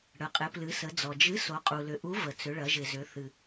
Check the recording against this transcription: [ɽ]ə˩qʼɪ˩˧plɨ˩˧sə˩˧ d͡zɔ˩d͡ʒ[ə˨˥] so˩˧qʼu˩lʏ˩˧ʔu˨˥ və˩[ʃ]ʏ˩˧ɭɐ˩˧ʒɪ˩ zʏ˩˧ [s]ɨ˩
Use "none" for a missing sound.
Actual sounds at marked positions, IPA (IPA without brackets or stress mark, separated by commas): ɽ, ɨ˨˥, t͡s, θ